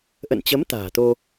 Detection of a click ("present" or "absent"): absent